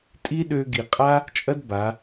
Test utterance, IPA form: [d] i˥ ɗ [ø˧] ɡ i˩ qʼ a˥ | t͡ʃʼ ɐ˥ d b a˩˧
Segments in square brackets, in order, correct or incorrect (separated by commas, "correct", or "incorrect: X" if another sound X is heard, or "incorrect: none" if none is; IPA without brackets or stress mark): incorrect: tʼ, correct